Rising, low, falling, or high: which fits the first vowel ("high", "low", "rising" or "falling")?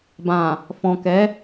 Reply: low